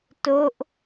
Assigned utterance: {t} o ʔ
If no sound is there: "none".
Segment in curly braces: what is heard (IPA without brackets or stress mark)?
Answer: t